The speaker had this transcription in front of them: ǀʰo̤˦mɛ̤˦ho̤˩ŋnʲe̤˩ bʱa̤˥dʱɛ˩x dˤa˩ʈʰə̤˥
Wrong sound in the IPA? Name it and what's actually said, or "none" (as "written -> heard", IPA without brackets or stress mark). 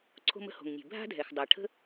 ɛ̤˦ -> ə̤˦